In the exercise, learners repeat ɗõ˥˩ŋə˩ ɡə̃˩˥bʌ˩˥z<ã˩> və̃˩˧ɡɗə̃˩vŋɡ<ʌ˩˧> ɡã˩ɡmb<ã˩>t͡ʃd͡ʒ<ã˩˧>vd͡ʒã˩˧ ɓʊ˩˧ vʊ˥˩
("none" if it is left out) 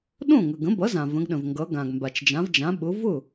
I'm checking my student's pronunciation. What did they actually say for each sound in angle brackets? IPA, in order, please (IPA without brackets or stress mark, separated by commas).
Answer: ã˩, ʌ˩˧, a˩, ã˩˧